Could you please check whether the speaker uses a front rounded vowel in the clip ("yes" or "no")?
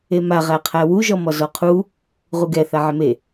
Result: no